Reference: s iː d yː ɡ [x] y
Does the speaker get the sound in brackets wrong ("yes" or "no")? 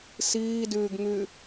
yes